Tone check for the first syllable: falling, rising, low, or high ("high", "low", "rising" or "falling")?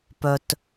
low